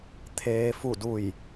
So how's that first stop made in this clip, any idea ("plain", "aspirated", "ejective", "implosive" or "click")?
aspirated